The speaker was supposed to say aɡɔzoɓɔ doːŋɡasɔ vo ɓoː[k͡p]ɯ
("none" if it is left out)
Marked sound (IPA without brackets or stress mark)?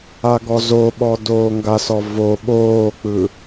k͡p